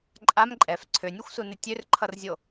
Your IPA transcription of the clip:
ǃʼ a m ǃʼ ɛ f ǀʰ ø nʲ u xʷ s u n ɪ tʲ ø r ǃʰ ʌ r zʲ o

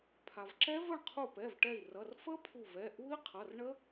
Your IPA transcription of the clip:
pʰ a˩ v ǁ ɛ˦˥ v ə˥˩ ɳ qʰ u˧˩ p ɛ˩˧˩ v ʈ ɛ˧˩ i̯ r ʌ˩˧˩ r f ə˦˥ pʰ u˧˩ v ɛ˩˧˩ ʔ u˦˥ i̯ qʰ ʌ˩˧˩ r ɳ ə˦˥

